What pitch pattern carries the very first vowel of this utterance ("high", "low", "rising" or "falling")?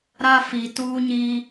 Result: high